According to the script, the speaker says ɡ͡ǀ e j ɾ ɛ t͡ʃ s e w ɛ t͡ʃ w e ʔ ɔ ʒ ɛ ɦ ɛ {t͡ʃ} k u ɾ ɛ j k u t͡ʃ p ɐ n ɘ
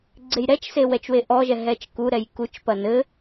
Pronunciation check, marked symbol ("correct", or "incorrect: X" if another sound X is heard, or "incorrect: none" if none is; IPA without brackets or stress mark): correct